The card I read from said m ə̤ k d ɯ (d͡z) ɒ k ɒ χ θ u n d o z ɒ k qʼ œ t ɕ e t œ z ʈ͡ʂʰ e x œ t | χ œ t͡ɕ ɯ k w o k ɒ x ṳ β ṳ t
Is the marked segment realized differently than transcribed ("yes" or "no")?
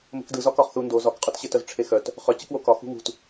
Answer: yes